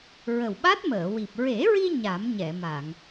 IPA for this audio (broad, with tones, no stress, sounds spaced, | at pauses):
ɹ ə˨˩ w ɓ a˦˥ t̚ m əː˨˩˨ w i˨˩ p̚ ɹ e˨˩˦ ɹ i˧ ɲ a˨˩˦ m ɲ ɛ˨˩˨ m a˨˩˨ ŋ